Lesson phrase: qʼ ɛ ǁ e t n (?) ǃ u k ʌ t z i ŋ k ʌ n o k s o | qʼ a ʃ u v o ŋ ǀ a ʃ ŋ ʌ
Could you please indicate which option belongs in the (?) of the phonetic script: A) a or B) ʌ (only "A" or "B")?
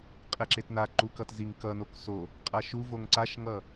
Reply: A